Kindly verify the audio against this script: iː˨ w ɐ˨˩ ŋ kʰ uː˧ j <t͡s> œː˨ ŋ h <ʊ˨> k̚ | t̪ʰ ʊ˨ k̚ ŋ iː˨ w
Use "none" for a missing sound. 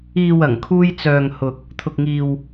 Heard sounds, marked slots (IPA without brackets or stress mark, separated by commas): t͡s, ʊ˨